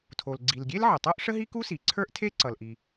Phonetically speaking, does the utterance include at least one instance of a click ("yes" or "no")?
yes